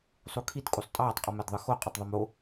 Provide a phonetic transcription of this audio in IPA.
sˤ u kʰ i t kʼ u sˤ tʼ ɑː tˤ qʼ ɯ m æ d ðˤ ɯ x o qʼ o tˤ ðˤ o m o

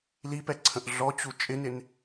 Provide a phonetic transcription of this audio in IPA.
l i p ɛ ǀʰ ə̃ ʔ ɮ ɔ t͡ɕ u t͡ʃʼ ɪ n ɪ n

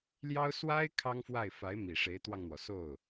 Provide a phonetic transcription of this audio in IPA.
l j ɑ˥ ʊ̯ s w a˥ ɪ̯ kʰ ɑ˥ ŋ f w a˥˩ ɪ̯ f a˧˥ ɪ̯ m i˨˩ ʂ e˧˥ ɪ̯ t̪ w ɑ˧ ŋ n̪ w ɔ˩ s o˥˩ ʊ̯

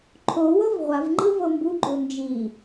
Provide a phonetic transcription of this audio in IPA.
ǃʰ o w ɤ v ʁʷ a v ŋ͡ǃ ɯ v ɤ m b u ɡ͡ǃ o n d͡ʒ i

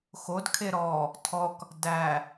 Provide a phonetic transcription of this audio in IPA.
x o d kʰ e ɾ ɔ | tʰ ɔ k | d æ

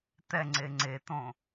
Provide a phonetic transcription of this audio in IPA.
t̪ ɛ ŋ͡ǀ e ŋ͡ǀ e t̪ õ

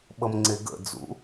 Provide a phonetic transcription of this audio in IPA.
ɓ ʌ m ŋ͡ǀ e ɡ ə̰ d͡z ṵ

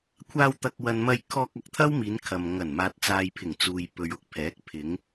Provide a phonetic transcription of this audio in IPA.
kʷʰ aː˧ w t̪ ɐ˨ k̚ w ɐ˨ n m ɐ˧ j kʰ ɔː˧ k̚ ɐ˨ k̚ t̪ʰ ɐ˥ w m iː˨˧ n kʰ ɐ˨ m ŋ ɐ˨˩ n m aː˨ t̚ t͡s aː˨ j pʰ ɪ˨˩ ŋ t͡s uː˨ j p ɵ˨ ɥ ʊ˨ k̚ pʰ ɛː˨˥ k̚ pʰ ɪ˨˧ ŋ

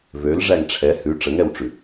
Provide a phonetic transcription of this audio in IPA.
v ø l ʐ æ ŋ ʈ͡ʂʰ ɛ h ʉ ʈ͡ʂ ə ŋ ɛ w ʈ͡ʂ ʉ

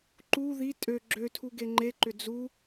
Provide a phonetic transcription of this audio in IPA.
ǃ u ð i tʼ ø ɡ͡ǁ ø tʰ u ɡ e ŋ͡ǃ e ǃ ʏ d͡z u

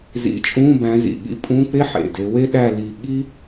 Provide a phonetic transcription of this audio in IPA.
z ḭ˨˦ t͡ʃʼ ũ˧˥˧ b æ̃˨˦ z ḭ˩ ɠ ḭ˧˥˧ pʼ ũ˧˥˧ k͡p e˥ ħ ḛ˩ d e˨˦ w e˥ ɗ æ˥˧ l i˧˩ ɠ i˥

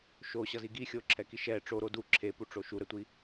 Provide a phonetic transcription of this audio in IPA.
ʃ o ɕ ʌ z i ɡ i xʲ o ǁʰ ɛ k i ʃ ɛ ʈ͡ʂ o ɾ o d u ǁʰ e p u ʈ͡ʂ o ʃ u ɾ ɛ tʷ i

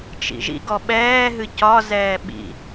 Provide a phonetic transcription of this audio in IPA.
t͡ʃ ḭ ʒ ḭ ɡ ɔ ɓ ɛː ɦ ɨ c ɒ z ɛː ɓ ḭ

